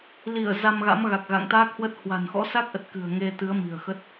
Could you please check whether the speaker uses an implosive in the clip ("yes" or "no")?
no